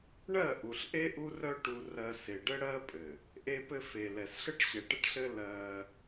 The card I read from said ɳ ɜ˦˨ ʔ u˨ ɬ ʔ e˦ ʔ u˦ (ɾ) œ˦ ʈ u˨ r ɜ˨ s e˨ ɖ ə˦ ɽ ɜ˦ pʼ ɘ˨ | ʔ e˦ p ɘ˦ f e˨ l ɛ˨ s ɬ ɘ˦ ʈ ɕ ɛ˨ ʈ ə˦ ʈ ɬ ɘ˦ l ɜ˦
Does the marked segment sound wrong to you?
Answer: yes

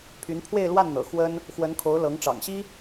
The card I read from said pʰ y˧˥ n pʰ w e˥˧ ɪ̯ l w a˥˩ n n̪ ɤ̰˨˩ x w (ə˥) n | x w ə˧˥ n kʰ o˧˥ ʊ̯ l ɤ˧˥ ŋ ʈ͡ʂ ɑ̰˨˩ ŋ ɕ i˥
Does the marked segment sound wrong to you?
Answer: no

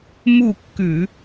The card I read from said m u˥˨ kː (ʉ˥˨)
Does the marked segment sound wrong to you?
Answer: yes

